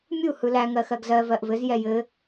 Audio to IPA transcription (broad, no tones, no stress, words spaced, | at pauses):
mʲu hɯlæ ŋɜxɜɡzɜ vɜʔvɘz jɛjɘ